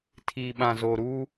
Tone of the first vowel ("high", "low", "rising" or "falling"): low